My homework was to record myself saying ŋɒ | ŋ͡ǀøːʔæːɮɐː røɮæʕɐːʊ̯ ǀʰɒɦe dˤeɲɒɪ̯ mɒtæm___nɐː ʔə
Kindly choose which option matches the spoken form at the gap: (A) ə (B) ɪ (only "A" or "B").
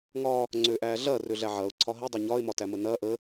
A